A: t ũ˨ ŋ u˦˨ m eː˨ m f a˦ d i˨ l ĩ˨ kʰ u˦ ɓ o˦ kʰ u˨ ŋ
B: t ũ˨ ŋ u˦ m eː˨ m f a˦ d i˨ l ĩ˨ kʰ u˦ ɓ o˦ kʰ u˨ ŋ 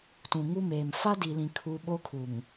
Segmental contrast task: B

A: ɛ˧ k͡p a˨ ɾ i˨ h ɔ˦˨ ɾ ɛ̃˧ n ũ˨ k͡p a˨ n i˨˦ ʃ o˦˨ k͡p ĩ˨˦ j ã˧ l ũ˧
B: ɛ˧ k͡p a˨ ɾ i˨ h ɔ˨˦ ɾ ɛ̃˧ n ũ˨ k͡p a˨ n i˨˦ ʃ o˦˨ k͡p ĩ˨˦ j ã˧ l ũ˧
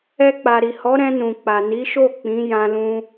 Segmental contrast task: B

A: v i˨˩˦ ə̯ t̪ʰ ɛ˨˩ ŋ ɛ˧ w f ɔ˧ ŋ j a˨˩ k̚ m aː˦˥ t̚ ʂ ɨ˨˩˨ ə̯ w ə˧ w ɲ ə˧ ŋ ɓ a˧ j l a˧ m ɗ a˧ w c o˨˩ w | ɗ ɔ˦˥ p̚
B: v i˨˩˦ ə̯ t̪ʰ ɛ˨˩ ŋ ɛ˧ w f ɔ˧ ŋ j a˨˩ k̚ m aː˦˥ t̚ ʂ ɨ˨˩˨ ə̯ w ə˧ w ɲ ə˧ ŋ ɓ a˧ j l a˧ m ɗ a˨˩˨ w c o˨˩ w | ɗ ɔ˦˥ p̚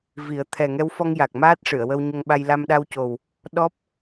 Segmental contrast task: A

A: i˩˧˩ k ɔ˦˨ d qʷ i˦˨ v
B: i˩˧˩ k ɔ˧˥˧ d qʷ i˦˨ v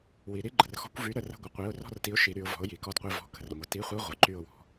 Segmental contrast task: A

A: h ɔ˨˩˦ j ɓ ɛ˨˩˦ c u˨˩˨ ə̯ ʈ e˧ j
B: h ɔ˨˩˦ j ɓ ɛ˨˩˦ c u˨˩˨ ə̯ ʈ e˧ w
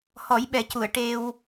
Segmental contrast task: B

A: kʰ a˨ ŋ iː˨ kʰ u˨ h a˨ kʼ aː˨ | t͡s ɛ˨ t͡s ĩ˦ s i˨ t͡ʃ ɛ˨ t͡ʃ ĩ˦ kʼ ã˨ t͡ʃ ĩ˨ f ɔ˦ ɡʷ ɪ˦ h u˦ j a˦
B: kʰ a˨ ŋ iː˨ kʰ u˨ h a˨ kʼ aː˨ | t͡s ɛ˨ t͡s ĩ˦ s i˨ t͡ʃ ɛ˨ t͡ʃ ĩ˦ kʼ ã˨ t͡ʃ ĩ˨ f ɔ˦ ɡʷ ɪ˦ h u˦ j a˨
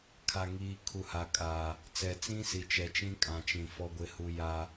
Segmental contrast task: A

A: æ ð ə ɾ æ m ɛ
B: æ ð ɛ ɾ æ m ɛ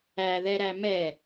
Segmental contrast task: B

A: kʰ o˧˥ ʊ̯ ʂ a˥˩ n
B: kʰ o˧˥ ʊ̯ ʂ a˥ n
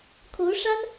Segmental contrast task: B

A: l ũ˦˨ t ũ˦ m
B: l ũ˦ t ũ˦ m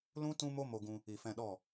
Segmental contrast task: B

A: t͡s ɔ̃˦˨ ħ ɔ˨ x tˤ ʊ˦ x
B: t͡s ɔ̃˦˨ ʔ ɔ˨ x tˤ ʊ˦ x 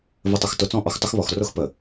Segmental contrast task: B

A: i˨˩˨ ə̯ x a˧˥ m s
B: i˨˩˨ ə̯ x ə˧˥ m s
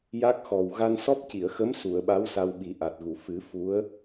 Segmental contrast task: B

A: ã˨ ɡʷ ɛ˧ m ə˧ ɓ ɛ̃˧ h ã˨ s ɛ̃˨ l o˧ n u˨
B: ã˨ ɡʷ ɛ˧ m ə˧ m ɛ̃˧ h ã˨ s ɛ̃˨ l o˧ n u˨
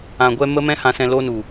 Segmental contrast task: B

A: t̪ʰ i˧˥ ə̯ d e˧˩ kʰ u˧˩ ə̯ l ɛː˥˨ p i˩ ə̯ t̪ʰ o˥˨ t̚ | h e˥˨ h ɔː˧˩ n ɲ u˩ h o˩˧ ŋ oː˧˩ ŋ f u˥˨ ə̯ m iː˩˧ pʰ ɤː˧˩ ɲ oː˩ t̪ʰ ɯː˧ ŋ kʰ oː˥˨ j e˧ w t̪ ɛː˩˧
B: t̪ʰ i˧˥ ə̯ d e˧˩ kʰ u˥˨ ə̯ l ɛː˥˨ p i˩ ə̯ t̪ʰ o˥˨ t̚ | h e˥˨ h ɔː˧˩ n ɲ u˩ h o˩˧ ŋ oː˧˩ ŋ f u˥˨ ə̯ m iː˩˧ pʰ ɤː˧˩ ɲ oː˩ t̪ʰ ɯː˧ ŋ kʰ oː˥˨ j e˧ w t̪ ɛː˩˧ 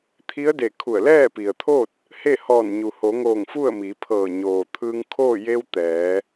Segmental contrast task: A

